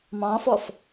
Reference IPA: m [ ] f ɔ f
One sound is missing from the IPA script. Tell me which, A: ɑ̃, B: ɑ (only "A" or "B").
A